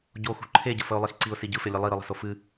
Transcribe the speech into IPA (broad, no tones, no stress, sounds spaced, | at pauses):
ɟ o x ṳ ǃʰ e ɟ ə f ə ʊ̯ lˠ i x ǀ i ʊ̯ s i ɟ ɯ f e lʲ e lˠ i ɾ ɯ lˠ ə̤ s o f ɨ